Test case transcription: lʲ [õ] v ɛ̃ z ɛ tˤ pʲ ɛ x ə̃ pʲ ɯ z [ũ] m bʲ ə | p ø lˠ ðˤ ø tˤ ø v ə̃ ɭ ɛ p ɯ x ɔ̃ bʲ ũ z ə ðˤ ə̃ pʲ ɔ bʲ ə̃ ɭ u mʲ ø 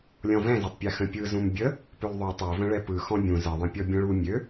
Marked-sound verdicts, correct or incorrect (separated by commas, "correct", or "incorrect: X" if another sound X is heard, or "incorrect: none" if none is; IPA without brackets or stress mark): incorrect: ɔ̃, correct